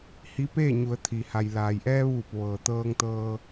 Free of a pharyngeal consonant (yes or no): yes